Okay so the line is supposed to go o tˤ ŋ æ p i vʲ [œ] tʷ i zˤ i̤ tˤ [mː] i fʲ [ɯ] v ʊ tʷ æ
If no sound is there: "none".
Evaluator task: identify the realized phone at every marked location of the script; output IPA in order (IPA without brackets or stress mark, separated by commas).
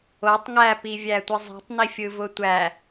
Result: æ, n, ɯ